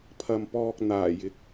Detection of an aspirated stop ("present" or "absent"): present